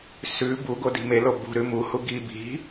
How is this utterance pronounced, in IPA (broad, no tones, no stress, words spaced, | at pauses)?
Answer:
sʉ buɡodi̤ melo bṳɾʉ muhu ɡi bi̤